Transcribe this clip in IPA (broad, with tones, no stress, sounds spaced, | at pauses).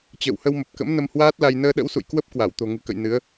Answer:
t͡ɕ ə̰ː˧˨ w h ə˧ w m ə˨˩ p̚ k ə̰˧˥ m n ə˧ m h w aː˦˥ t̚ l a˧ j n əː˧ ɗ ə̰˧˥ w s ṵ˧˨ j k w ə˦˥ p̚ k w a˧˩ w t̪ o̤˨˩ ŋ ɨ̤˨˩ k ə̰˧˨ j n ɨ˨˦ ə̯